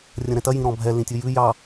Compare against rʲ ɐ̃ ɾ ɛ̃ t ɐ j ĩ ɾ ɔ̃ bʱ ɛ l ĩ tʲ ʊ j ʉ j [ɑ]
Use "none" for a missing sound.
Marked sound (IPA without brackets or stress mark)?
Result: ɑ